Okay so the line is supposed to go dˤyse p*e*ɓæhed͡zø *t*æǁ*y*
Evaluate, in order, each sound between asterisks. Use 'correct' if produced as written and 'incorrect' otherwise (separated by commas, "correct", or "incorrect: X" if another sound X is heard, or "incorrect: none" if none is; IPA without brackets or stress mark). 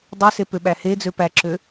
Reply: incorrect: ø, incorrect: p, incorrect: ø